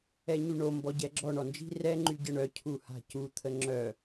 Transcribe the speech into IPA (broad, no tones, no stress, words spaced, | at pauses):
ɛɲyɳo mbɔɟɛɡ͡ǁɔ ɳɔnd͡ʒi̤ rɛ ŋ͡ǃyɟəɳœ cʰuha̤cu t̪ʰəŋ͡ǁœ